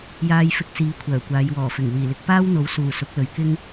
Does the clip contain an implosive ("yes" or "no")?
no